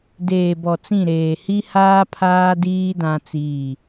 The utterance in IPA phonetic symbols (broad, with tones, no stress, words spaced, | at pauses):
deː˨bɔ˨t͡sĩ˦˨ɾeː˨ hi˦haː˦ pʰaː˦diː˦ dã˦t͡siː˦˨